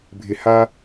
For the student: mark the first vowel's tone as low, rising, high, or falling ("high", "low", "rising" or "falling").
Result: high